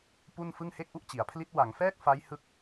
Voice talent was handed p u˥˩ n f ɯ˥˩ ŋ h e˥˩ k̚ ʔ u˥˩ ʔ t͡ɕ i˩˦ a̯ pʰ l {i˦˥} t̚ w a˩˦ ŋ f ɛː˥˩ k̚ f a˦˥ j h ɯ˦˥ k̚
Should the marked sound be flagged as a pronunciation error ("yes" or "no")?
no